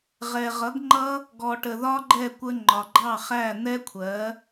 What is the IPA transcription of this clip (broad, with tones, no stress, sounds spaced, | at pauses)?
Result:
ʁ ɛ˨ ʁ ʌ˨˦ ɡ ŋ͡ǃ ʌ˦ | ɡ ɔ˨ ʈ ə˨ ð ɒ˦ ɡ͡ǃ ɛ˦˨ kʷ ə˧ ŋ͡ǃ ɒ˨ ɡ͡ǃ ɑ˦˨ χ æ˦˨ n̪ ɛ˦ kʷʰ ɜ˨˦